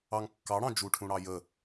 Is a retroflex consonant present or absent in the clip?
present